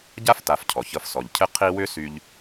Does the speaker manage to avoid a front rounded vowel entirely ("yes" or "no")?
no